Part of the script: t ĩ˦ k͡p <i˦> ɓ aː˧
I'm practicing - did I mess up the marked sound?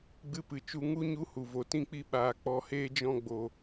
no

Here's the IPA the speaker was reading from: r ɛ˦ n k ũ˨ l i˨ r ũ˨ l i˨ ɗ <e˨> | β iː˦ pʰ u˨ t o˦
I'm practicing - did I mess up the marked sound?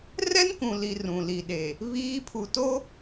no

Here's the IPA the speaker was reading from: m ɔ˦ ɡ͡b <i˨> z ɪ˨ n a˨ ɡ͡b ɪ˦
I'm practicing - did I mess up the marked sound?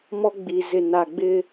no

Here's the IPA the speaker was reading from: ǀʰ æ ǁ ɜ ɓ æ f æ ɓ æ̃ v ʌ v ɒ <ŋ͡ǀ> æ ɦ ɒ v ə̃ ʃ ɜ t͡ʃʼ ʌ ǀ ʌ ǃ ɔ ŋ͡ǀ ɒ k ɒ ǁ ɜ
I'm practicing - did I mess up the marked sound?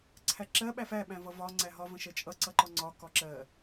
no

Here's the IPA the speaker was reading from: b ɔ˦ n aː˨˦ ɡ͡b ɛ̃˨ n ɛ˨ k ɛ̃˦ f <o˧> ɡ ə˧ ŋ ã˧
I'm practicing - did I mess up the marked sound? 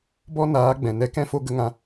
no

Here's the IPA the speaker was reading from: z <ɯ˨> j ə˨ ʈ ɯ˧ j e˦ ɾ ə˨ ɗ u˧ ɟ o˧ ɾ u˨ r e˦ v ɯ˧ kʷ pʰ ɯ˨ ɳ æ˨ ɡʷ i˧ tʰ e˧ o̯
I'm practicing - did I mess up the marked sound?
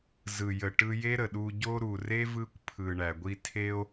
no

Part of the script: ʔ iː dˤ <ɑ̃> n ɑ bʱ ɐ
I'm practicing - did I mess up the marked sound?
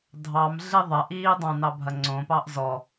no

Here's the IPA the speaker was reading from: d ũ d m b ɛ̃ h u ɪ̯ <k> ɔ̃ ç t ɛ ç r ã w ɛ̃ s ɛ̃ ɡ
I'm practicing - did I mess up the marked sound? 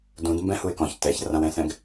no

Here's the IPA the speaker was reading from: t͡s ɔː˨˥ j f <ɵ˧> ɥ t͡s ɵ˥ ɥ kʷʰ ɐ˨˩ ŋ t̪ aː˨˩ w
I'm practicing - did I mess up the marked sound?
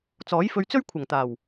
no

